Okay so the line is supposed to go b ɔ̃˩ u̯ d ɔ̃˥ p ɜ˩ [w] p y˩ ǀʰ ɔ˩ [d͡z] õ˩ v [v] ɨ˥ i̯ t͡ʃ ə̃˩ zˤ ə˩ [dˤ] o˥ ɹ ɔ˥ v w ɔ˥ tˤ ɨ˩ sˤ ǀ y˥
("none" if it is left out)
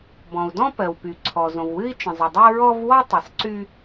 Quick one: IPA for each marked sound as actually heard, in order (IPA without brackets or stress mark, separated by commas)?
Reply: w, z, w, dˤ